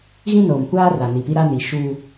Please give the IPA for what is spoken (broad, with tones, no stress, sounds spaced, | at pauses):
ɣ ĩ˦ n oː˨ m kʷ aː˦ r a˨ n i˨ p i˦ ɾ a˦ n i˨ ʃ u˦